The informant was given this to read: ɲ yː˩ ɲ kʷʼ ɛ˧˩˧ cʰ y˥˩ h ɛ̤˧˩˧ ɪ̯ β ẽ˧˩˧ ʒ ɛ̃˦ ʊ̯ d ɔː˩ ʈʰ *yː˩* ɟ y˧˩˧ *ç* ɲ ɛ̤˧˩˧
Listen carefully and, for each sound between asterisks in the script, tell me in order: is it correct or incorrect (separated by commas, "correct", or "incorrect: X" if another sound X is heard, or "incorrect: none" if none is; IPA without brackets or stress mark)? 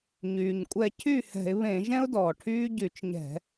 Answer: incorrect: yː˦, incorrect: t͡ʃ